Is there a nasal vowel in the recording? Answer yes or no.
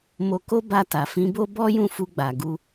yes